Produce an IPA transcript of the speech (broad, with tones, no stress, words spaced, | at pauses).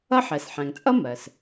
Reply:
ʌ˦ħɛ˩sħæ̃˩ŋt͡sʼʌ˥ mɜ˩s